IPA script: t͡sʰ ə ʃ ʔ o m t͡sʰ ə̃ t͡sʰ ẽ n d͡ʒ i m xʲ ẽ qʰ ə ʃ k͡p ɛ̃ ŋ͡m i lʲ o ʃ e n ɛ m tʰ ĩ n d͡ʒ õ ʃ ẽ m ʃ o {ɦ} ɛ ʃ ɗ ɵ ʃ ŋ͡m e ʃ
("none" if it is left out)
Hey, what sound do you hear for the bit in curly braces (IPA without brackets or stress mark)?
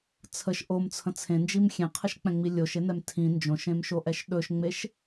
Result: ʔ